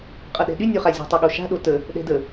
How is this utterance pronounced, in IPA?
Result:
qʼ ɤ ɗ ɛ̤ ɗ y nʲ o χ a zʲ o̤ tˤ y ɠ o ʃ a̤ ɗ o t ə | ɗ ɛ̤ d ə

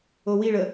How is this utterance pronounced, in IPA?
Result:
o w i ɭ ə

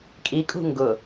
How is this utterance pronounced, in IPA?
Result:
kʼ i kʼ ṳ ŋ ɡ ʊ

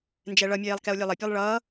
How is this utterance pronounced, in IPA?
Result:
n d͡ʒ ɛ ɭ ʌ mʲ eː lˠ k ɛ o̯ lʲ e lˠ ə pʲ ɛ lˠ ɭ ʌː

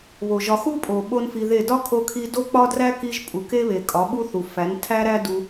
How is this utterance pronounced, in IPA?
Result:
β o˨ ʒ ɒ˧ x u˦ pʼ o˨ ɓ o˦ n f i˧ ð e˦˨ d ɒ˦ kʰ o˧ kʰ i˧ d o˦ k͡p ɒ˦ d r æ˦ k i˧ ʒ pʼ u˨ k e˦ β e˨ kʼ ɒ˨˦ ɓ u˦ θ u˨ f æ˨˦ n tʰ æ˦ ɾ æ˦ d u˧

